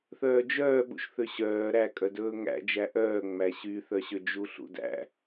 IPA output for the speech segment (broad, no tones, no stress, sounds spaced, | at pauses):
θ œː d͡ʒ œː ɓ ṵ ʃ θ ø ɕ œː ɾ æ kʼ œ d ɵː ŋ æ̰ d͡ʒ æ ʔ œː ŋ͡m æ ɕ y θ œ ɕ ø d͡ʒ u ɬ ṵ d æ̰